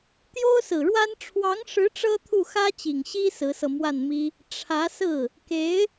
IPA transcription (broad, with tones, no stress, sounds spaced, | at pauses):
t̪ j o˥ ʊ̯ s ɹ̩˨˩ ɻ w a˥ n ʈ͡ʂʰ w ɑ˧˥ ŋ ʂ ɻ̩˧˥ ʈ͡ʂ ɤ˥ t̪ʰ u˥˩ x ä˥ t͡ɕ i˨˩ ŋ ɕ i˥ s ɹ̩˧˥ s ɤ˧ m w a˥˩ n m i˥ | ʈ͡ʂʰ ä˧˥ s ɹ̩˥˩ | k e˧˥ ɪ̯